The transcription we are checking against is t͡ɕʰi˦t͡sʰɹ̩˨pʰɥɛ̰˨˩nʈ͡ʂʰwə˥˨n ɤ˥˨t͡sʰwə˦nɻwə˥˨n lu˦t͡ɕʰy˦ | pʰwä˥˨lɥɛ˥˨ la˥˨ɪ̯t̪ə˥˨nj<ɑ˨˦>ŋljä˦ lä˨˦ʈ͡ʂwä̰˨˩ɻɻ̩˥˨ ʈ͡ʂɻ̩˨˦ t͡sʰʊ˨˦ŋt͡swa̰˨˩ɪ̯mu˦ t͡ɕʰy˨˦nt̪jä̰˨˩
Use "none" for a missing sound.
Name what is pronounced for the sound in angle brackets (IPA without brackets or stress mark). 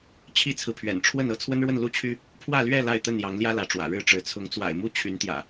ɑ˨˦